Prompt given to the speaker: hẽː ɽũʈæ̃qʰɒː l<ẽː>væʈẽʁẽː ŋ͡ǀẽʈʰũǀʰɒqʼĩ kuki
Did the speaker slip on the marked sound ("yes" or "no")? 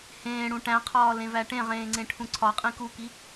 yes